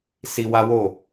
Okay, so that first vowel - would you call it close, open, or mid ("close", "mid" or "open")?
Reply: close